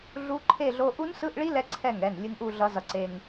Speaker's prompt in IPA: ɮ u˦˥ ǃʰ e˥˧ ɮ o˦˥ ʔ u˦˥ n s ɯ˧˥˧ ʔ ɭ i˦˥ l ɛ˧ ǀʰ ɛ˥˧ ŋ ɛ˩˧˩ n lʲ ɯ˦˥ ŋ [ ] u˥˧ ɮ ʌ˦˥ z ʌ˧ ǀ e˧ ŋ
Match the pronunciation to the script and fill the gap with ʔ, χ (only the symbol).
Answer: ʔ